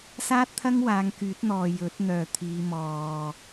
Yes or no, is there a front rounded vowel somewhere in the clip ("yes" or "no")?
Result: yes